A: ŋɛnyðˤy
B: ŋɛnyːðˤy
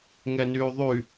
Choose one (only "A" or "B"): B